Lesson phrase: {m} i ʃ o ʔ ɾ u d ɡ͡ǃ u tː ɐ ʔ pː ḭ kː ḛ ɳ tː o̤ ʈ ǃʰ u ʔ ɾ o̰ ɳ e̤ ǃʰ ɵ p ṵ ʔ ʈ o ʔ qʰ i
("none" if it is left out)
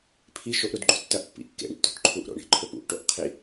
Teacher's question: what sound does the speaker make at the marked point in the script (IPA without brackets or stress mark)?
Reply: pʰ